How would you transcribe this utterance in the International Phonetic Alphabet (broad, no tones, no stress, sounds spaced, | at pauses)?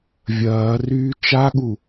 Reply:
vʲ ɐː r yː t͡ʃ a ɠ u